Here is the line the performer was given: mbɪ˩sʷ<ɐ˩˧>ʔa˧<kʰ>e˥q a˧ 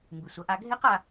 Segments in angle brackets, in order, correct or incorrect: correct, incorrect

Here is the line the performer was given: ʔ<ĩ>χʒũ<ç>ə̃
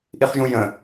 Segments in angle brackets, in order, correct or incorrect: incorrect, incorrect

